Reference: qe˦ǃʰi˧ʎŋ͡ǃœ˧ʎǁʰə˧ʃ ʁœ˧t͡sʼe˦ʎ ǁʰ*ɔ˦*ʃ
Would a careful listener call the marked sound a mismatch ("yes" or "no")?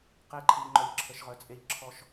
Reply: no